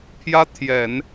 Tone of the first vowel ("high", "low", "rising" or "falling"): high